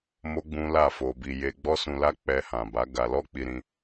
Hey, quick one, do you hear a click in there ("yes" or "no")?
no